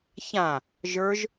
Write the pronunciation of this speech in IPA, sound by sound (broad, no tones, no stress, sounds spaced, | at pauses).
ç ã | ʒ ə˞ ʒ